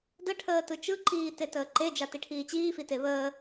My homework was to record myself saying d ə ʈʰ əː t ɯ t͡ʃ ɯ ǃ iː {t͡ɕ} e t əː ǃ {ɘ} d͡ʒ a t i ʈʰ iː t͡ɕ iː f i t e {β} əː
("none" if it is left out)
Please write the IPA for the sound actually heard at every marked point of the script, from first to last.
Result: t, e, β

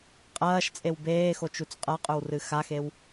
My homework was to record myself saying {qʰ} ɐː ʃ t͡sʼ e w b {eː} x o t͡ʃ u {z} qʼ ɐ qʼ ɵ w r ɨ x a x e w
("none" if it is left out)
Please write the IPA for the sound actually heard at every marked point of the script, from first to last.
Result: qʼ, eː, t͡s

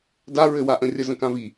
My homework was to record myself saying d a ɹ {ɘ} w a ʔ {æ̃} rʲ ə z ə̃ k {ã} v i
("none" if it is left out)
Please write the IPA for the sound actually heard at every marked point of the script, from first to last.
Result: ɘ, ə̃, ã

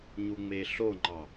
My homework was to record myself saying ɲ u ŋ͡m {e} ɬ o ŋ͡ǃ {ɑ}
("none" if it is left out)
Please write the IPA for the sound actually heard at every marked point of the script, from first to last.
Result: e, ɑ

